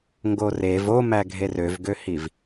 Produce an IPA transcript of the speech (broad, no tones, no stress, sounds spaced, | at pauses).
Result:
ŋ ɡ o r e v o m æ ɡʱ e r ø v ɡ ø h i v